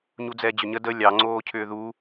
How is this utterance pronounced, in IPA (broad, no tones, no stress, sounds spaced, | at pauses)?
ɲ u d͡z ɛː d͡ʑ ʏ ɲ ə d ə lʲ ɑ ŋ͡ǀ oː cʰ ʏː ð u